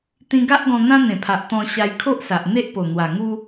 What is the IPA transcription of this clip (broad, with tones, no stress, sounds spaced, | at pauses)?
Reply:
t̪ ĩ˧ ɡ a˦ ʔ ɡ ɔ̃˧ n̪ ã˦ n̪ ẽ˨˩ pʰ a˨ ʔ t̪ ɔ̃˧ ɕ a˧ j kʰ o˦ ʔ s a˨ ʔ n̪ e˦ ʔ p o˨˩ n̪ w a˨˩ ŋ u˦